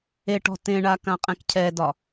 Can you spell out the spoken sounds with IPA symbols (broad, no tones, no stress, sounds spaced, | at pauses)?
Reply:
e ʈ ɔ̤ t ẽ ɳ a k ã qʼ ɛ̃ k cʰ ɛ d ɒ